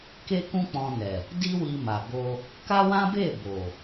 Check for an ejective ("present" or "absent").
absent